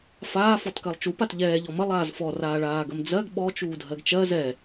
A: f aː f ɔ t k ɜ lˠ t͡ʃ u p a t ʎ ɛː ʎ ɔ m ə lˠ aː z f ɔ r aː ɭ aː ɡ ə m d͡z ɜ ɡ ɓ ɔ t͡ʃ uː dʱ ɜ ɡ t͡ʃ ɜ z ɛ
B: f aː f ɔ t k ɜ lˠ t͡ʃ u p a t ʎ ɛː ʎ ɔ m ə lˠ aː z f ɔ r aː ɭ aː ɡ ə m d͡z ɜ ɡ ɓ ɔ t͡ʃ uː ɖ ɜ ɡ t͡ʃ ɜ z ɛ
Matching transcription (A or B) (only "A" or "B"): A